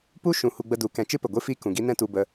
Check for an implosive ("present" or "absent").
absent